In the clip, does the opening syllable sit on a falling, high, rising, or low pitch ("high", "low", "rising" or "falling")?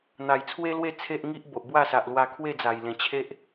low